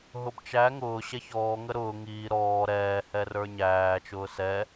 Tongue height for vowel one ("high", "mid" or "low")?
high